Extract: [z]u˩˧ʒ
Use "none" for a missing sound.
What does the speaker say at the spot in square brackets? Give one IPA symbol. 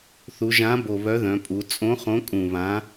θ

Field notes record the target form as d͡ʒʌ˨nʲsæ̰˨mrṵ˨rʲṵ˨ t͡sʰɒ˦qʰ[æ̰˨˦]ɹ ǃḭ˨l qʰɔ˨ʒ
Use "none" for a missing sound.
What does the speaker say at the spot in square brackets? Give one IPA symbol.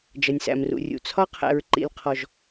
æ̰˨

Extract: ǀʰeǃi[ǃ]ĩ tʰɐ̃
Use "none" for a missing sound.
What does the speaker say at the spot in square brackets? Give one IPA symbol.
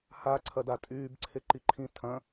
ǃʰ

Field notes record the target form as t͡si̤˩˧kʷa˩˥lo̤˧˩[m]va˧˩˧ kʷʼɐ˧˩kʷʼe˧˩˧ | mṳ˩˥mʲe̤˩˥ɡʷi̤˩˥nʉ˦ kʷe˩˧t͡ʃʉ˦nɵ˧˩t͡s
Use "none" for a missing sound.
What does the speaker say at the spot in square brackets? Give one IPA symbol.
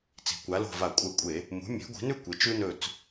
none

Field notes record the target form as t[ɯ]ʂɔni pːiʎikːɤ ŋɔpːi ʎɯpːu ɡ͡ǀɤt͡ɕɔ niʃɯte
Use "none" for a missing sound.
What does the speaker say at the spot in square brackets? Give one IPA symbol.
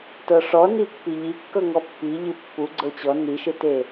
ɤ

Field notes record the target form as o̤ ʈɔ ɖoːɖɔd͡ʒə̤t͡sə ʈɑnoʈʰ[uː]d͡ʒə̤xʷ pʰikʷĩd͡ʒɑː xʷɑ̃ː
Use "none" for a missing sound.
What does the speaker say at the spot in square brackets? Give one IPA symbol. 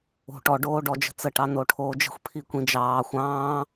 oː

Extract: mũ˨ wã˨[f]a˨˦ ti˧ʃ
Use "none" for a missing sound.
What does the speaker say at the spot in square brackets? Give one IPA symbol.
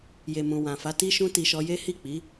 f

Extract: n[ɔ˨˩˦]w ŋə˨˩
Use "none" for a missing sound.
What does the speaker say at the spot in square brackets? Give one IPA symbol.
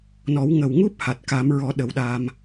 ɔ˨˩˦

